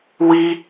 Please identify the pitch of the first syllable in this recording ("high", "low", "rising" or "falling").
high